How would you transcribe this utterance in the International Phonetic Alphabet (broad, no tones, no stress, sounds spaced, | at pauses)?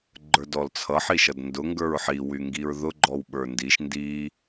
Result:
ɡ͡ǃ ə˞ d ɔ l t͡sʰ ʌ ħ i ʃ ʌ d n d ʊ ŋ ɡ ə˞ ɹ ħ i w y ŋ ɡ i ɹ ð ʊ ɡ͡ǃ ɔ w ɓ ə˞ n d i ʃ n d i